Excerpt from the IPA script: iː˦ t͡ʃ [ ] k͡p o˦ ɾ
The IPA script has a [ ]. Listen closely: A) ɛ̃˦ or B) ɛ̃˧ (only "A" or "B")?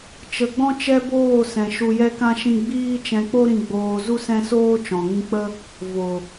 B